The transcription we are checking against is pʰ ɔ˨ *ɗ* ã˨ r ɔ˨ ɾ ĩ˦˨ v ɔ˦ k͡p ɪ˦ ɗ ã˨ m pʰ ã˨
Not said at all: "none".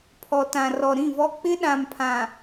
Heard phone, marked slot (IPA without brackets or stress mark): t